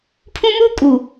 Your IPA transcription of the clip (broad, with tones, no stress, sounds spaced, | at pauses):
pʰ ũ˦ m uː˦ kʼ uː˨